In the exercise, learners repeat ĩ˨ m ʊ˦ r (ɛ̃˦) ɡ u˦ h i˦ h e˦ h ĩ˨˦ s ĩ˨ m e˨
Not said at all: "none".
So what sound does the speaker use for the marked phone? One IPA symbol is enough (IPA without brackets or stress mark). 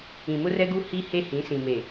ɛ˦